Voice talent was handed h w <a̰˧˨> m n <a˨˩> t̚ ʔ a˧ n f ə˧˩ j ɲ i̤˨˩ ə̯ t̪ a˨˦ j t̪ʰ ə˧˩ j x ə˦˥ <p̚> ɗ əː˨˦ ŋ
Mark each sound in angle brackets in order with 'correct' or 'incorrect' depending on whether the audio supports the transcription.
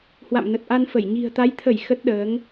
correct, incorrect, incorrect

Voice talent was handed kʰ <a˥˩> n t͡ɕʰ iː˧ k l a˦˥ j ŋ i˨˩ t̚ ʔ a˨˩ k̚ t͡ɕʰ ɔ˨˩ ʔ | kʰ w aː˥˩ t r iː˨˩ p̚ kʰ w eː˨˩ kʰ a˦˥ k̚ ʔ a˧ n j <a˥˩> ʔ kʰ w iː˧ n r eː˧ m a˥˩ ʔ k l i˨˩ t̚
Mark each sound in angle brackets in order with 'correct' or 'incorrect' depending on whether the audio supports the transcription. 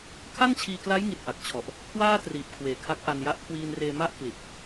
correct, correct

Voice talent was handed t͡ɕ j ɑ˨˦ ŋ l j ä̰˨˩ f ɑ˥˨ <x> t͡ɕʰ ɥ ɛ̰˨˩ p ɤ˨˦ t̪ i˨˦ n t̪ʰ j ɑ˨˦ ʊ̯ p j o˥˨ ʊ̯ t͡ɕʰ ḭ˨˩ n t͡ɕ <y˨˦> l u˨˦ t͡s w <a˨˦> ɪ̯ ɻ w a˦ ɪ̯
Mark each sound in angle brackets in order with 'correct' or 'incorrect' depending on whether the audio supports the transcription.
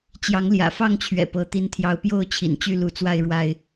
incorrect, incorrect, incorrect

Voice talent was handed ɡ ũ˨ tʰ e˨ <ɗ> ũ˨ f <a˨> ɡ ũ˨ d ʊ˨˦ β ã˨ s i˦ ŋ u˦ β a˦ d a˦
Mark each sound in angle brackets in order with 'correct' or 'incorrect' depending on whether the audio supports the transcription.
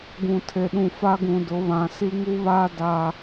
correct, incorrect

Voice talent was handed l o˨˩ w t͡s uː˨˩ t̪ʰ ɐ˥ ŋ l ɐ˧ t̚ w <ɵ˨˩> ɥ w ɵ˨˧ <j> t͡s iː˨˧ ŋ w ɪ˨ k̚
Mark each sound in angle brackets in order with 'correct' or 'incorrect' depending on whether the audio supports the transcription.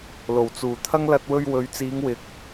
incorrect, incorrect

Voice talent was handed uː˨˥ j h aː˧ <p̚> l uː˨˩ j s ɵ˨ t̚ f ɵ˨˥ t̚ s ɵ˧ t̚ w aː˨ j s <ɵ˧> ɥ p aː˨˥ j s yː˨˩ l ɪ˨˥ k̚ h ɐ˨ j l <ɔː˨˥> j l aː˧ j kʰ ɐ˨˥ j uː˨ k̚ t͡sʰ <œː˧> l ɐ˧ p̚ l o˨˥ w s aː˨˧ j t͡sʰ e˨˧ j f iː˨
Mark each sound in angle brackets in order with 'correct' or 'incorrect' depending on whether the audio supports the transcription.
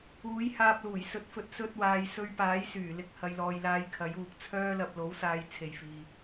correct, correct, incorrect, incorrect

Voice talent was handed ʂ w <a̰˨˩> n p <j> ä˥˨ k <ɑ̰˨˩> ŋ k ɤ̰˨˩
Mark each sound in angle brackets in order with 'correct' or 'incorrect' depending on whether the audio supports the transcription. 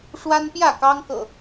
incorrect, correct, incorrect

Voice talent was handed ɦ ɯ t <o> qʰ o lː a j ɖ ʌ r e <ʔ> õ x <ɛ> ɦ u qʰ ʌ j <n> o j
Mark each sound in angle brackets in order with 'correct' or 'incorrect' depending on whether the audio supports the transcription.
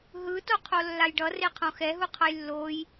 correct, incorrect, correct, incorrect

